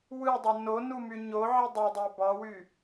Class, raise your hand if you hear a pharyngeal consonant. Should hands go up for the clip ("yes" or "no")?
yes